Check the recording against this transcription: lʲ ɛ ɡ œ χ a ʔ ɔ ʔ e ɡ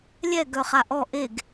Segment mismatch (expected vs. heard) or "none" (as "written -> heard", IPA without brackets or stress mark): none